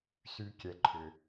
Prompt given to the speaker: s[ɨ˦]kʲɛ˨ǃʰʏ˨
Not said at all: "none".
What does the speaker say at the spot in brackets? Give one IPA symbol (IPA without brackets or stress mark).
y˦